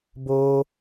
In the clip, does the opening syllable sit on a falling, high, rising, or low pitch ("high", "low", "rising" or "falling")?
high